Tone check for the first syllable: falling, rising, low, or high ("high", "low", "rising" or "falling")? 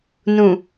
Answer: low